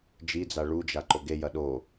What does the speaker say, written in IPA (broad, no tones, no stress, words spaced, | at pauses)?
d͡ʒid͡za ɭud͡ʒa ǃoɡejɐ ɗo